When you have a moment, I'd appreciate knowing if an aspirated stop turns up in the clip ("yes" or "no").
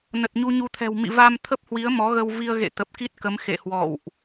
yes